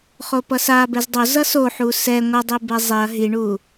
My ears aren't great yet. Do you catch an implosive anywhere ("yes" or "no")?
no